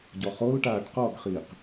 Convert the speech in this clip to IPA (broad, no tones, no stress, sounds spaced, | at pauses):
ɟ ɔ χ o l ʈ aː ʈ q ɔ ɡ χ iː q